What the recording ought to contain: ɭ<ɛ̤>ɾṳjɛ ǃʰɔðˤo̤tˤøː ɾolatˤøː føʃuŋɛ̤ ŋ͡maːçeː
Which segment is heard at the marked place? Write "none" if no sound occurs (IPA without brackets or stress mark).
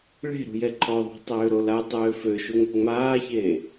e̤